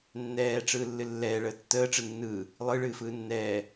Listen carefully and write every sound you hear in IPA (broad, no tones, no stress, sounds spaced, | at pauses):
nː ɛː ʈ͡ʂ ɯː lː ɨ lː ɛː ɭ əː tː əː ʈ͡ʂ ɯ nː ɯː | lˠ ɯ ɭ ɨː f ɯː nː ɛː